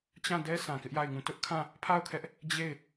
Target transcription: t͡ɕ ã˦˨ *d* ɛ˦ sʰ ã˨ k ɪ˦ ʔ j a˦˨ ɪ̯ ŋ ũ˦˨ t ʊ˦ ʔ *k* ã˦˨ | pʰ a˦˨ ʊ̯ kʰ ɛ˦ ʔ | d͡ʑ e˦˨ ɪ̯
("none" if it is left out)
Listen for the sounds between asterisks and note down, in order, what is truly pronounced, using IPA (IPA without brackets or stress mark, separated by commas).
d, kʰ